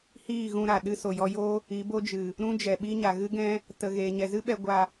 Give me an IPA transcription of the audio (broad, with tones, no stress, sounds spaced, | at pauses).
h iː˦˨ ɣ ũ˧ ɾ a˨ ɗ ɨ˧ s o˨ j ɔ˧ j o˦ | i˨˦ b o˦ d͡ʒ ɨ˨ | ɾ ũ˦ d͡ʒ ɛ˨ ɓ i˦ ɲ a˨ ɣ ɨ˦ ɡ ɛ̃˦ | t ə˨ ɣ eː˨ ɲ ɛ˨ z ɨ˦ ɓ ɛ˧ ɡʷ a˧